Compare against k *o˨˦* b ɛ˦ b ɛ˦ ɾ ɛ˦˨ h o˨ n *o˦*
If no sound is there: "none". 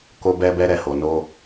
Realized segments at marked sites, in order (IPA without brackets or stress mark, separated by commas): o˦, o˧